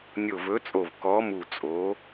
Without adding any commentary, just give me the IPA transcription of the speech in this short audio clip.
nʲo˧˩vɵ˨˥t͡sʼo˧˩v kɔ˨˥mu˧˩t͡sʼo˨˥

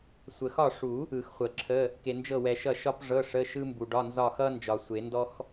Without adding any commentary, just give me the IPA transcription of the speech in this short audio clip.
sʷə˨xɒ˦˨ʂu˨˩˦ | ɯ˨˩˦xχʷə˨˩˦ǁʰə˧˥˧ | ke˨nd͡ʒɤ˦˨wɛ˨ʃʌ˦˨ ʃɒ˥pʐɤ˧˥˧ ʂə˧˥˧ʃɯ˥mbu˨ɖɒ˧˥˧ nzɒ˦˨xʌ˥ nd͡ʒɒ˨sʷe˨˩˦ndɔ˥x

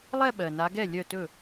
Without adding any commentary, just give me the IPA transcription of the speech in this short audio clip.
lˠɛ˥˧ɓɜ˨˩na˨˦ɡɛ˥˩ lʲœ˥˩tɵ˥˩

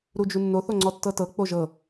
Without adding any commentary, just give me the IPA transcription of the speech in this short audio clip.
ɾud͡ʒunːo θoŋ͡ǀɔtːɤtɤ k͡poʒɤ

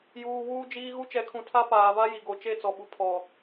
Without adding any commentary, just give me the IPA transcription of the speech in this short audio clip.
juː˨wuː˦d͡ʒiː˦ ɣu˦t͡ʃɛ˨˦kʰũ˨ tʰa˦ paː˨va˦ji˨ ɡo˨ t͡ʃe˦˨t͡sɔ˨ɓu˨ pʰɔ˨

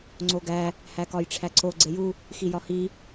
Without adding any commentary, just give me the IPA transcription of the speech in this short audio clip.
ŋ͡ǀoɡæ | hækɒjʈ͡ʂʰæǀo ɡ͡ǀeju | xijɒhi

